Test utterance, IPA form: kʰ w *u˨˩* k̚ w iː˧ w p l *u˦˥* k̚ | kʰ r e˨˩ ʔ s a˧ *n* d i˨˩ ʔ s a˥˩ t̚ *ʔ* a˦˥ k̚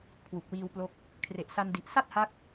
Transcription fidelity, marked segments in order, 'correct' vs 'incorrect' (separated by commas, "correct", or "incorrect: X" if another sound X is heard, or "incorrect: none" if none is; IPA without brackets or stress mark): correct, incorrect: o˦˥, correct, incorrect: h